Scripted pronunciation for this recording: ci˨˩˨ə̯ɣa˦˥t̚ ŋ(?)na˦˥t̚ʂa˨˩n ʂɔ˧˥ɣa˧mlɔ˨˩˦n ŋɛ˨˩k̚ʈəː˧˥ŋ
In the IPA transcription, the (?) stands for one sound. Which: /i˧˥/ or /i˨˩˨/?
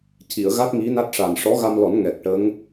i˧˥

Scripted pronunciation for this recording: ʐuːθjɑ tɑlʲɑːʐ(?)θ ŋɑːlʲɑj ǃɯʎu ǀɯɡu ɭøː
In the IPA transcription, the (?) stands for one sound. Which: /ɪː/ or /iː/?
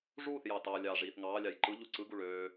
iː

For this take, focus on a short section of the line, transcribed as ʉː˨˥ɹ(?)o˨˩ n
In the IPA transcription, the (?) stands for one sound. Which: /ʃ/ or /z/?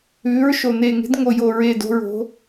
ʃ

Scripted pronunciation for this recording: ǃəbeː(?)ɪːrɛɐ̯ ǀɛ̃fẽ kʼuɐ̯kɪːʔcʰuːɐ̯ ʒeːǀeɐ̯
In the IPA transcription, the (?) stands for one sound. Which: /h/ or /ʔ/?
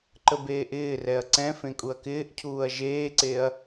ʔ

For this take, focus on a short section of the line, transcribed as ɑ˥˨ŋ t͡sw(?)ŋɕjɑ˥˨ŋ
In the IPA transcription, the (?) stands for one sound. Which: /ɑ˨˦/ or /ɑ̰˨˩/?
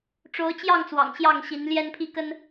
ɑ̰˨˩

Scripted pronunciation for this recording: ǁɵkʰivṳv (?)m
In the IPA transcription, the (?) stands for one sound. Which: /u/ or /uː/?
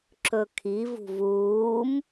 uː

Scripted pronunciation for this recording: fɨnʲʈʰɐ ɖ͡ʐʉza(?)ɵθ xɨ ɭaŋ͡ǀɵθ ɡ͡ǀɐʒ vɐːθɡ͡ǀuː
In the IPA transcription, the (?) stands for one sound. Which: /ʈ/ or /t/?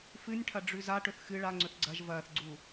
ʈ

